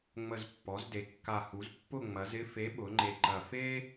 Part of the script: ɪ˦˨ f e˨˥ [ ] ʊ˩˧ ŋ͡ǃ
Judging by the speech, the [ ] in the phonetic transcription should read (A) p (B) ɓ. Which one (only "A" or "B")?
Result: B